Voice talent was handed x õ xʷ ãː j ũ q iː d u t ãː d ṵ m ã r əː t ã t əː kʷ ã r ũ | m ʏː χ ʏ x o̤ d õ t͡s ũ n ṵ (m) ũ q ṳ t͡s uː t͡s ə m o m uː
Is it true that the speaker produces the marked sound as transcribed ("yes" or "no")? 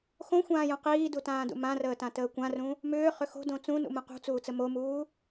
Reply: yes